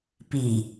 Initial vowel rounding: unrounded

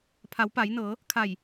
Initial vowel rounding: unrounded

